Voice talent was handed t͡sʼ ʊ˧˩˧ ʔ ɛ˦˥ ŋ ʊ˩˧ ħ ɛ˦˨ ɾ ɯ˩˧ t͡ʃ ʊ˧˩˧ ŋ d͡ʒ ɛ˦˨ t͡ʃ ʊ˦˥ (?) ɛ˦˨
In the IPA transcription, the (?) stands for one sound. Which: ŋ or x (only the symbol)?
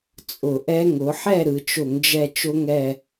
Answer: ŋ